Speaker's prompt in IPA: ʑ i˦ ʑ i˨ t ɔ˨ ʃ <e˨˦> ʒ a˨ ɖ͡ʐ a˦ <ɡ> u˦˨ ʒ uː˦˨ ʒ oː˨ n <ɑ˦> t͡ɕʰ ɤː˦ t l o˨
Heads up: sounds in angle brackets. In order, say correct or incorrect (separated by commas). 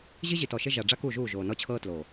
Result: incorrect, incorrect, incorrect